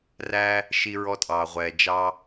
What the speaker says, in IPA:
r æ˧ | ʃ i˧ ɹ ɔ˧ tʼ ɑː˩ ʁʷ ɛː˩ d͡ʒ ɑ˧

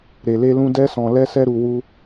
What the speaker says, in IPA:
ɾ e˨ l e˧ l ũ˧ d ɛ˦ s ɔ̃˧ l ɛ˦ s ɛ˦ ɾ u˧ w u˧

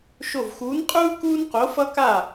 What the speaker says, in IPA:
ʃ o˧˩ v x uː˨˥ n qʼ uː˥ k uː˥ n q o˨˥ f ʌ˥ k a˥˩

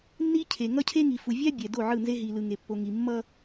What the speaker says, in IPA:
nː i˦ cʰ e˨ ŋ ʌ˦ cʰ e˦ ŋ i˨ f u˨ vʲ a˦ bʲ ɛ˨ d o˦˨ ʕ ɯ˦˨ n z e˦ ɦ i˨ l ɯ˨ ŋ e˨ pː o˨ ŋ i˨ mː ʌ˦

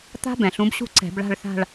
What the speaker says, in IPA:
t̪ a̤˦˥ b ɛ̃˩ ɬ ũ˨˦ b ɕ ṳ˥˩ ǀ ɛ̤˧˩˧ b ɭ a̤˥˧ ɭ θ a̤˥˧ ɭ

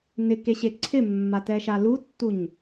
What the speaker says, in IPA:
n ɪ k e ɕ e ǀʰ ɪ mː a t ɛ ʃ a l u tː u ɲ

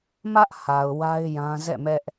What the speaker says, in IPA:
m ä˦ ʔ h a˨ ʊ̯ w a˦ ɪ̯ j ã˦ z ɛ̰˦˨ m ɛ˦ ʔ

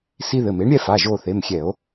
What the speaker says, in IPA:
s i˦ ð ɘ˩˧˩ m e˨˥ ɳ ɾʲ ɛ˦ f a˩˧˩ ʒ o˦˨ θ e˩˧˩ m xʲ ɛ˧˩˧ o̯

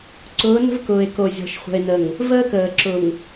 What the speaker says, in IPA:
ǀ ʊː˨˦ n ə̤˦ v k ʊː˨ e̯ k o˨ zʲ ɔ̤˨ ʃ χʷ ə̤˨ e̯ n ə˨ ŋ | v əː˦ k əː˨ ǁ ʊ˨ ŋ

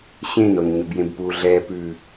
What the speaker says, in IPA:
ɕ ẽ n o n ɲ ɵ b j ẽ b p u ɮ ɛ p ʉ

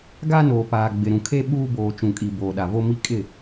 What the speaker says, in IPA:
ɡ a˦ n oː˨ p aː˨ ɡ͡b ɪ˨ ɾ ũ˨ kʰ e˦ ɓ uː˦ b oː˨ t͡ʃ ũ˨ kʼ i˨ b oː˨ ɗ a˨ v o˦ m i˦ kʼ ɪ˦˨

